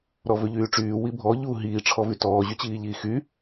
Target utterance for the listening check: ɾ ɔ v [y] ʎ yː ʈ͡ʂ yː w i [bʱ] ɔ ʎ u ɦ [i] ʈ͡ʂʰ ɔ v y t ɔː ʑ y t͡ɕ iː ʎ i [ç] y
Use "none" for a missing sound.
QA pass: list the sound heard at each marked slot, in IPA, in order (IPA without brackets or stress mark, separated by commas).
ø, bʱ, iː, x